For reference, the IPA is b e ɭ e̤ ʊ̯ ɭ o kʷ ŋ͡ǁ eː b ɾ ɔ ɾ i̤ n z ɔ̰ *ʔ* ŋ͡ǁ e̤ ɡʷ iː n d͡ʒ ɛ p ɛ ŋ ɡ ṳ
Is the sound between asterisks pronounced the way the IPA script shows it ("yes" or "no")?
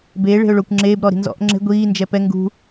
yes